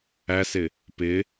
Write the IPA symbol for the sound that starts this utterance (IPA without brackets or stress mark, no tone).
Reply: æ